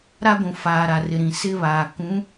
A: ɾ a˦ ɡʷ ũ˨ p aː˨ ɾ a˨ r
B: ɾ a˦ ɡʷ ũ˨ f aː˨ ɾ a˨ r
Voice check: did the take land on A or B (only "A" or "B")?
B